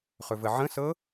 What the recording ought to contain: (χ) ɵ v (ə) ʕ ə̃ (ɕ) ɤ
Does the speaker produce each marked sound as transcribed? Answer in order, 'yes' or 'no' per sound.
yes, yes, no

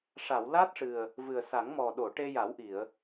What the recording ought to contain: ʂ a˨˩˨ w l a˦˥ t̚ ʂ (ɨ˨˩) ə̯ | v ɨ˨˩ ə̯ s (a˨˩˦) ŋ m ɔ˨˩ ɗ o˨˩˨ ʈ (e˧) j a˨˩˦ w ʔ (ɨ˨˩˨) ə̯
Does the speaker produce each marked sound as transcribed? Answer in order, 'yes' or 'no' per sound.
yes, yes, yes, no

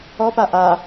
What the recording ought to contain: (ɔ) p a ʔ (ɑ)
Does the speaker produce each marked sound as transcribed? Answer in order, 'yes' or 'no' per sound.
yes, no

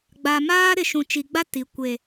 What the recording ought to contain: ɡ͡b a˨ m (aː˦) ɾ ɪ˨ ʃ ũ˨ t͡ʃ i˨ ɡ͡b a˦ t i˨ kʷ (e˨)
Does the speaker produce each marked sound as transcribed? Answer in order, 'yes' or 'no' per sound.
yes, yes

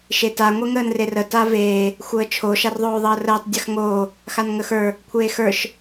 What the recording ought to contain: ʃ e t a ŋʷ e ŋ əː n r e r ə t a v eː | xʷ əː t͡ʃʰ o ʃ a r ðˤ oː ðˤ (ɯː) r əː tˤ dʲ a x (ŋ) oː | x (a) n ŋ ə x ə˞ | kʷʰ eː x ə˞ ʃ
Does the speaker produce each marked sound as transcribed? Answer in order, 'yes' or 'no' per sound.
no, yes, yes

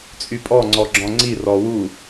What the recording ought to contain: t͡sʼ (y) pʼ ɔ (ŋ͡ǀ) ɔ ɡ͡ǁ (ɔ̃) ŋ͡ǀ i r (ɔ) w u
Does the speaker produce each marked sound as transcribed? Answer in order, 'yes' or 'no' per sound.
yes, yes, yes, yes

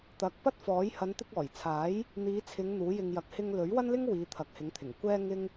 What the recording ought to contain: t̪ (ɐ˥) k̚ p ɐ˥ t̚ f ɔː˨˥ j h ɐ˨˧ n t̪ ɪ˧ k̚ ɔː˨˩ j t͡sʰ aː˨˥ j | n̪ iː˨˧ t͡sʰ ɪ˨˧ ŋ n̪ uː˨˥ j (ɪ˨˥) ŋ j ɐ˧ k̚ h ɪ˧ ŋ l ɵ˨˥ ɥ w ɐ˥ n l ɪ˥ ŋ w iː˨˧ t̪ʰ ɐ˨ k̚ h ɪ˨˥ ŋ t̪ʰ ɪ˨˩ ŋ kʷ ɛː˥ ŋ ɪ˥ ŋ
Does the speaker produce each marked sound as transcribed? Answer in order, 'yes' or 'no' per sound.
no, no

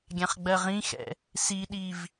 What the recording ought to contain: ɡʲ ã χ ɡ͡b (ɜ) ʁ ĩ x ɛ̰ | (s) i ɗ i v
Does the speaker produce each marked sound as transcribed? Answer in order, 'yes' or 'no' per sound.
yes, yes

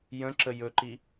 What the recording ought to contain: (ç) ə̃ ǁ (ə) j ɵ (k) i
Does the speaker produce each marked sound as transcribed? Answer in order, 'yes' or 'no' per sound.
no, yes, no

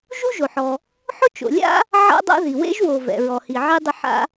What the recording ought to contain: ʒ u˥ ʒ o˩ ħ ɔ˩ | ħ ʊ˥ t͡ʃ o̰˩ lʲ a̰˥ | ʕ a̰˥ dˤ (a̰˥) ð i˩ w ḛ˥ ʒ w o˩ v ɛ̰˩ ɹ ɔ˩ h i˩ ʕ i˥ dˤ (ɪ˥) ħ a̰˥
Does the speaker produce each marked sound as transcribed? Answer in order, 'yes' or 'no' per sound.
yes, yes

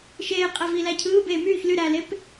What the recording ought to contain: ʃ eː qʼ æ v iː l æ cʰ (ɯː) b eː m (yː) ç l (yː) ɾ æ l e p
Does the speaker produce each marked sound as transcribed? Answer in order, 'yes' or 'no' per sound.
yes, yes, no

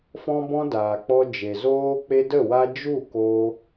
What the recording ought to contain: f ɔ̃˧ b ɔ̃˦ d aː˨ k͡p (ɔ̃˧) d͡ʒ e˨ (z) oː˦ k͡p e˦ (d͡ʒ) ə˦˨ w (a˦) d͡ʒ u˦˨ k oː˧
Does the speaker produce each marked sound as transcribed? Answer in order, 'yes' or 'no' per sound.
no, yes, no, yes

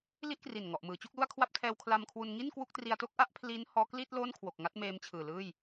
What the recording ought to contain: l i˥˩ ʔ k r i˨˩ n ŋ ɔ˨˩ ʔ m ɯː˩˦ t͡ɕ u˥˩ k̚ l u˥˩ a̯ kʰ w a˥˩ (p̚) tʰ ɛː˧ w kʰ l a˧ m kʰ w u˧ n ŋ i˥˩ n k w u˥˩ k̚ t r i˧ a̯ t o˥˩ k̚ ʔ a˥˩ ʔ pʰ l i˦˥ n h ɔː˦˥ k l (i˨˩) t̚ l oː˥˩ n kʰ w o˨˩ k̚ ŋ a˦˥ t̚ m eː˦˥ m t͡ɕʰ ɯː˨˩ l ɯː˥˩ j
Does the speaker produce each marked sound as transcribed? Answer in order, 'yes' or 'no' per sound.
yes, no

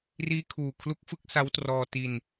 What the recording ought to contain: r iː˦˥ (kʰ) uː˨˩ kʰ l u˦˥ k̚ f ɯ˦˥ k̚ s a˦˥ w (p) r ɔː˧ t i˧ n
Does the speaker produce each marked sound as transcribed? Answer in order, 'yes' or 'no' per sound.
yes, no

